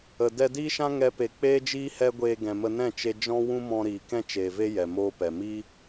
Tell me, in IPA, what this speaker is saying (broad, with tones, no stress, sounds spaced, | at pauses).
ə˨ d ɛ˧ d iː˦ ʃ ã˦ ŋ ɛ˧ p e˨ k͡p eː˦ d͡ʒ iː˦ h ɛ˦ ɡʷ eː˧ ɡ ɛ̃˨ m ə˧ n ɛ̃˦˨ t͡ʃ e˧ d͡ʒ ɔ̃˦ w ũ˦ m ɔ̃˧ ɾ iː˨ k ɛ̃˦ t͡ʃ eː˨ v e˦ j ɛ˨ m oː˦ p ɛ˨ m i˦